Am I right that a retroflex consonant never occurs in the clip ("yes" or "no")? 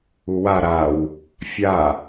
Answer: yes